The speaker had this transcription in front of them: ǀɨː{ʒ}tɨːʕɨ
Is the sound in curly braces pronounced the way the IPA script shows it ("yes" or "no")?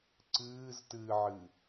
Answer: no